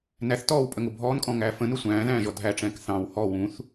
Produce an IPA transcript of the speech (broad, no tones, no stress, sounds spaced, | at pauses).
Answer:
n æ θ t ɔː w pʼ ə ŋ ʊ bʱ ɔː n kʼ ɔ̃ ŋ æː f ə̃ n ʊ sʷ æ̃ː ð æ̃ː ʒ ɔ dʱ æ ʈ͡ʂ ɛ̃ː k θ ɑ̃ w h ɔ w ũ θ